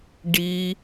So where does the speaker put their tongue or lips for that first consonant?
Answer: retroflex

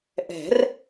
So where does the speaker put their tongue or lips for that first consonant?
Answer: throat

